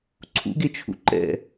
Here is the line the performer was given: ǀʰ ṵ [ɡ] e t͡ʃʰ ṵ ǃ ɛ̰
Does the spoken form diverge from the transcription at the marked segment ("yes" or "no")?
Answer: no